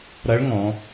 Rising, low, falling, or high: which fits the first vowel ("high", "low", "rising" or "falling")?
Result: rising